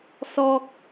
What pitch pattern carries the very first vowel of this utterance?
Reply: high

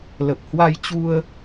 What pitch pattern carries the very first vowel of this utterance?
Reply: low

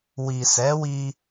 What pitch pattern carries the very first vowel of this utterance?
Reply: low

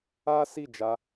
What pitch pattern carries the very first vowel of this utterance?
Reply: high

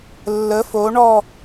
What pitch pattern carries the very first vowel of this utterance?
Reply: rising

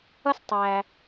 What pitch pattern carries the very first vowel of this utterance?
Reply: high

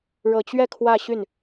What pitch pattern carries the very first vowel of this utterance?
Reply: low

